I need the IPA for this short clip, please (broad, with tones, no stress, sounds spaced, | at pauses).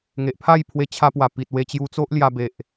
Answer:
ŋ e˨ ʔ pʰ a˥˧ j pʰ w e˧ t͡ɕʰ a˧ p w a˨˩ p i˨ t̚ w e˧ t͡ɕ j u˧ t͡s o˦ ʔ l j a˧ b e˨ ʔ